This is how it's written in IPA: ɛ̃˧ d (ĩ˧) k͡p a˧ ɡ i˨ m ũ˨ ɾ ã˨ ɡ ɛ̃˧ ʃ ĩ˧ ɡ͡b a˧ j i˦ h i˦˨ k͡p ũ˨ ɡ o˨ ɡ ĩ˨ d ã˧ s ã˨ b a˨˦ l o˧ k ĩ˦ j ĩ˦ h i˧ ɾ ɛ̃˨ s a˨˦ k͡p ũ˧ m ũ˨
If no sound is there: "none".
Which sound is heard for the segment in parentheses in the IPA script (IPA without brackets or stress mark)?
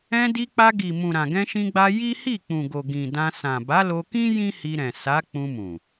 i˧